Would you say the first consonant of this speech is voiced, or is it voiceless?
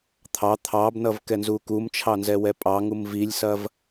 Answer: voiceless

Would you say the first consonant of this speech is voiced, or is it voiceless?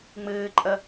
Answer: voiced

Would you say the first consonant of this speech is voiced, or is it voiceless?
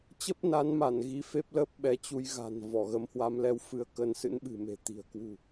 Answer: voiceless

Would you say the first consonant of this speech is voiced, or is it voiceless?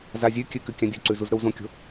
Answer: voiced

